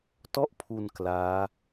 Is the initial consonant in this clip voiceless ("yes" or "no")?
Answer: yes